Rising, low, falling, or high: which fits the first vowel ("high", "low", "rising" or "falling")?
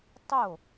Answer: falling